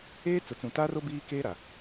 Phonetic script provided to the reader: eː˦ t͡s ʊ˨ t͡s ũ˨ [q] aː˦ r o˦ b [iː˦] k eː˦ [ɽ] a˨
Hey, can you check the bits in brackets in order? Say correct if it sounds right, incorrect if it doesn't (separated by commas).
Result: incorrect, correct, incorrect